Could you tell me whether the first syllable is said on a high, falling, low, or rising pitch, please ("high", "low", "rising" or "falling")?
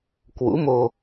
rising